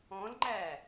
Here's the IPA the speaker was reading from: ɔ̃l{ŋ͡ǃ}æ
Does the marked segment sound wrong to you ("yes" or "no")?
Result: no